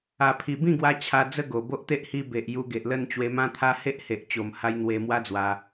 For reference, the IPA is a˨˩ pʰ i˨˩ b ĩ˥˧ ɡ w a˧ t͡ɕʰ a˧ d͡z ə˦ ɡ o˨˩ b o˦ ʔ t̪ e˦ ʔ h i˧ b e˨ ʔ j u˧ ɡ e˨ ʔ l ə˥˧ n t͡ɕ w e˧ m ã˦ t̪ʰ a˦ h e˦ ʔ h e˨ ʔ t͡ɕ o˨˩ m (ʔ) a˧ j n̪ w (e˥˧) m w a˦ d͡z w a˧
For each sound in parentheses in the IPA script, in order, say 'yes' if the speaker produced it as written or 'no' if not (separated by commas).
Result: no, no